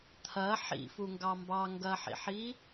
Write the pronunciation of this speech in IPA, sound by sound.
t̪ʰɐ ħḭfuŋɡɑ mbɑŋɡɐħḭħi

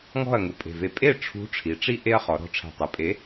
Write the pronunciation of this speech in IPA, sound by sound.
ŋɔ̤˥˩ɐ̯ŋu˨˩pʼe̤˨˩ve˨˥ pʼe˥˩ʈ͡ʂʰṳ˨˥ ʈ͡ʂʰi˩˧ ʈ͡ʂi˦ ʔe˦ɐ̯χɔ˩˧ɾɔ̤˨˥ʈ͡ʂʰe̤˨˩ tˤu˩˧pʼe˨˥

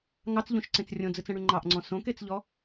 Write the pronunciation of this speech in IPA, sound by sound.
ŋɑt͡sʎõʃǀẽt͡s rʲõd͡zɨt͡sɛ̃ɽy ŋ͡ǃɑʔŋ͡ǀɔ̃ sõket͡sʎɔ

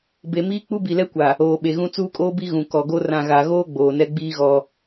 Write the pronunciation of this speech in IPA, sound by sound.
be˨miː˦ k͡pu˦bi˨lɛ˦kʷa˨ | oː˨ɓe˨ɣũ˦ t͡suː˦kʼoː˦bi˦ ɣũ˨ kɔ˨ɡo˦ rã˨ɣa˨ɣoː˦ ɡ͡boː˨nɛ˦ɡ͡biː˦ɣɔ˦

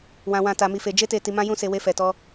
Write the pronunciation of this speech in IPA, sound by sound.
wã˨wã˨ ta˨mi˨fe˨ d͡ʒe˧te˨ ti˨mã˧jũ˧se˨ we˧fɛ˨tɔ˧

